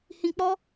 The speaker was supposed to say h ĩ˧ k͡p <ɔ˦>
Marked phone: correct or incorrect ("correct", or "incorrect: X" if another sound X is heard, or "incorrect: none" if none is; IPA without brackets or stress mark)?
correct